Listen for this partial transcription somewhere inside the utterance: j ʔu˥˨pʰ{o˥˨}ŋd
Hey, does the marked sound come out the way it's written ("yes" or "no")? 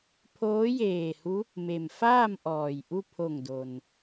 no